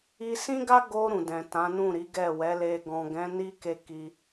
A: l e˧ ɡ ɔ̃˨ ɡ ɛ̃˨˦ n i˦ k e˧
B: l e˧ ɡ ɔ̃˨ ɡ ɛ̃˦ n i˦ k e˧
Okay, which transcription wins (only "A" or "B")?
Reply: A